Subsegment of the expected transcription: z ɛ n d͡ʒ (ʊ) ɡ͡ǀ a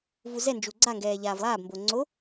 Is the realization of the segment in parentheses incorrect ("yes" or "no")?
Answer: yes